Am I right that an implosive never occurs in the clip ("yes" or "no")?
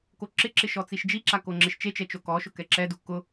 yes